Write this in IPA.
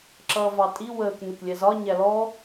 ǁ ʌː v ɑ tʼ i w əː k n ʊ k lʲ ɛ z ɒ ɲ æ l ɔ

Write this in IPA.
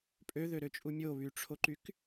pʼ ø ð ø ɾ ø t͡ʃʼ u mʲ o β y ʈ͡ʂʰ o ǃ y k

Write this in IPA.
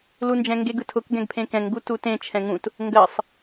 l u n d͡ʒ ɛ̃ ŋ ɡ e ɡ ɯ tʰ ʊ k ɡ ɛ̃ ɡ pʰ ẽ k ɛ̃ ŋ ɡ u t u t ẽ t͡ʃʰ ɛ̃ ŋ ũ t | ŋ ɡ ɜ sˤ

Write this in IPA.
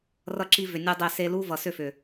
r ʌ˧ ǁ i˧ v ʏ˨ nʲ u˧ dˤ e˧ s e˧ l u˦ v ʌ˨ s ʏ˦˨ f ʏ˨

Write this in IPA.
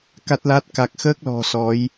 k a˦˥ t̚ l a˦˥ t̚ k a˨˩ k̚ x əː˦˥ k̚ l ɔ̤˨˩ s ɔ˨˦ j

